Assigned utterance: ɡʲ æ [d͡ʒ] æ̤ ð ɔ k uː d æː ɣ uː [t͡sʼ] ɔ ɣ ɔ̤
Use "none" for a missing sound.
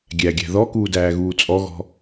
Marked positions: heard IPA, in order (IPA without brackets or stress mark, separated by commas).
ɡʲ, t͡sʼ